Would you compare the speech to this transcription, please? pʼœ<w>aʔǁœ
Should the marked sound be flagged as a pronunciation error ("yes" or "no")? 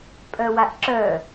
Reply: no